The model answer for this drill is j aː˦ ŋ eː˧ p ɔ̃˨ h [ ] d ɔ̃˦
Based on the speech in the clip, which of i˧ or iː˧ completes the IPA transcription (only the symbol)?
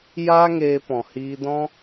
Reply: iː˧